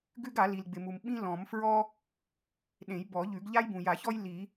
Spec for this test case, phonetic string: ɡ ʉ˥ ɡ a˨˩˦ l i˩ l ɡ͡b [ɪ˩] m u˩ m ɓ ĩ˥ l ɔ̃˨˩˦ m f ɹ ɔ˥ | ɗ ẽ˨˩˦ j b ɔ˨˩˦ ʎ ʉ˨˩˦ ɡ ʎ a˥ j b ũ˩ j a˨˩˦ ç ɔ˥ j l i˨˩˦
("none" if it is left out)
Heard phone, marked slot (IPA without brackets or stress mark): ɪ˩